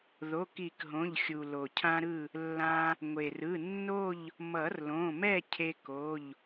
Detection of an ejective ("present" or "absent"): absent